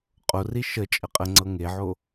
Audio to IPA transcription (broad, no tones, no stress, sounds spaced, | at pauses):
qʼ o r i ʃ ə t͡ʃʼ ə qʼ ə ŋ͡ǀ ɤ ŋ e ʕ o